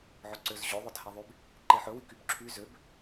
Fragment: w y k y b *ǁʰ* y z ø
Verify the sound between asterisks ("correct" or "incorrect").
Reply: correct